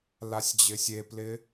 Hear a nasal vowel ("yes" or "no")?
no